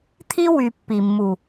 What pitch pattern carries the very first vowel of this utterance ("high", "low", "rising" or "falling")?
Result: high